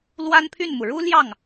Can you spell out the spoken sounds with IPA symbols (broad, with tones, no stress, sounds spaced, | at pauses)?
l w a˥ n pʰ y˥˩ n m u˩ ɻ u˥ l j ɑ˥˩ ŋ